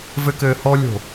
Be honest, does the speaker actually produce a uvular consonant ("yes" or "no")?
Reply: no